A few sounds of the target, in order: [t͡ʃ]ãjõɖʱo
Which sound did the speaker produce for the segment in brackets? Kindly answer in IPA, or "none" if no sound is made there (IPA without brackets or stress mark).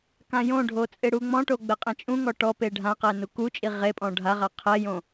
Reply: k